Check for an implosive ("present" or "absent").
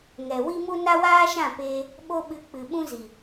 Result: present